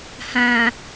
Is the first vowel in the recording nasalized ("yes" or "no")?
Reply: yes